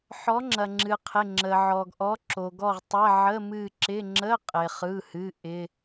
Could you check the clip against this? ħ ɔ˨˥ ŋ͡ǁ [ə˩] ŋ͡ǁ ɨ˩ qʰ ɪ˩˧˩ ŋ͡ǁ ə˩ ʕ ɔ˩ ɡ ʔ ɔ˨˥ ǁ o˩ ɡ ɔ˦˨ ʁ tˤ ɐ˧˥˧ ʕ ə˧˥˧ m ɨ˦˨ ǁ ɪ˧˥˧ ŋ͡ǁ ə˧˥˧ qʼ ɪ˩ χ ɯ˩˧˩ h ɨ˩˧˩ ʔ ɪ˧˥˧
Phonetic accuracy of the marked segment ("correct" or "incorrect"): incorrect